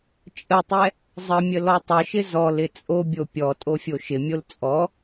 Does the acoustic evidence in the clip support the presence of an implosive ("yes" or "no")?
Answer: no